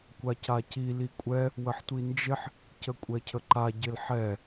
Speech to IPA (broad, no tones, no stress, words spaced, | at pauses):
kʷacaci likʷʼɛ | wəħtʷind͡ʒɪħ | cəkʷʼɛcʰəǃa ɟɪlħɛ